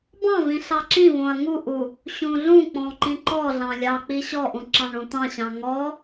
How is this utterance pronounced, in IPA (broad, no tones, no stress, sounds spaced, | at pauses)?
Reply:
b ɑ̃ v ĩ ɬ ɑ ǁ ĩ v õ ɐ̯ ŋ u ʔ u | ɕ ũ ɮ ũ k͡p ɔ̃ ǃ ĩ ǃ ɔ ɮ ɑ̃ lʲ ɑ k͡p i ɕ ɔ ʔ ũ ǁ ɑ̃ ɳ ũ t̪ ɑ̃ ɕ ɑ̃ ŋ ɔ